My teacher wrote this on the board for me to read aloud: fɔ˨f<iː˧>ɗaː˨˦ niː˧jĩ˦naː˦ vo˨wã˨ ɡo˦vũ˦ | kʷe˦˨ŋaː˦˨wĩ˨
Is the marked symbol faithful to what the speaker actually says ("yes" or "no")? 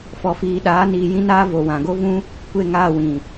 no